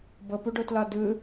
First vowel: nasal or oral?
oral